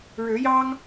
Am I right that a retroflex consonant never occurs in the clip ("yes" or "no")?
no